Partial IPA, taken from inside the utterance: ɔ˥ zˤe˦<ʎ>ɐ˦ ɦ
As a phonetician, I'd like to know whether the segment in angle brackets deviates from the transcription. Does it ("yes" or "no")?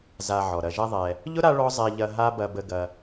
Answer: no